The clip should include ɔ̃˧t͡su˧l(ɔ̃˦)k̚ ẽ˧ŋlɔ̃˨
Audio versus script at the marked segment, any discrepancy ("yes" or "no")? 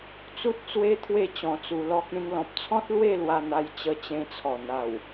yes